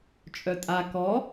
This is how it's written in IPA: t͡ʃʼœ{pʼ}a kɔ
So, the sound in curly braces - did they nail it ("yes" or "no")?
no